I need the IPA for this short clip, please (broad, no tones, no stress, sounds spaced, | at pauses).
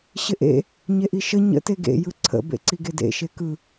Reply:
ɕ ɪ ʔ ḛ | ɲ e ʔ i ʃ ə ɲ ə̰ t e ɡ ḛ j ɯ ǀʰ ə̰ b ḛ ǀ i ɡ e d ḛ ʃ e k ɯ